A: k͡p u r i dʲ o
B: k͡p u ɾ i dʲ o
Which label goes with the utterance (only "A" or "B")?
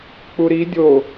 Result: B